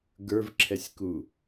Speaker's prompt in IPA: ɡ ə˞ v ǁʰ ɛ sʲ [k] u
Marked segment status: correct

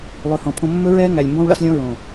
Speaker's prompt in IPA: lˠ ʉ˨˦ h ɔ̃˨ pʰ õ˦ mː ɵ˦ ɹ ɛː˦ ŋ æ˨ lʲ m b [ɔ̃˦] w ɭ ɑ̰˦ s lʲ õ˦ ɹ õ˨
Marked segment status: correct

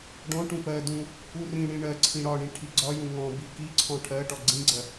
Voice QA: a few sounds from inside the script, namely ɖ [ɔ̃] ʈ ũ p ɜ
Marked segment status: correct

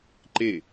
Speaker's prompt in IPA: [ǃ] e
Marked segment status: correct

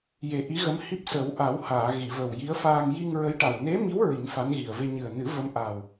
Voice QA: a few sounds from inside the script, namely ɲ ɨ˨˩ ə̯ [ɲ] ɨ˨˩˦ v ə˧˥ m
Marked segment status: incorrect: n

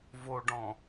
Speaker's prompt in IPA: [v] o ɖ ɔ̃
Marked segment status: correct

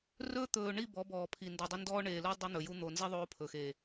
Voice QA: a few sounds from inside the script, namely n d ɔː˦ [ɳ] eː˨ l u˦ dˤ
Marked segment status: correct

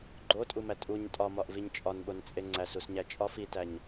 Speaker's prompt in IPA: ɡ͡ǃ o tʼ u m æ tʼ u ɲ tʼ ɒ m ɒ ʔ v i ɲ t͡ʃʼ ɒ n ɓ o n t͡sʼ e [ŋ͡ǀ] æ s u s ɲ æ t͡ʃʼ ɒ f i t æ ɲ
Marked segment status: correct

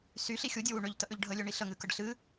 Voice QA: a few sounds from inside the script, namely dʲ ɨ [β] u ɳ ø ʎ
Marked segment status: incorrect: w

